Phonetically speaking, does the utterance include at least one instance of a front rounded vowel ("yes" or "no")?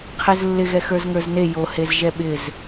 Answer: no